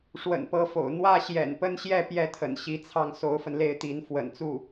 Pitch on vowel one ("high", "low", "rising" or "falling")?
low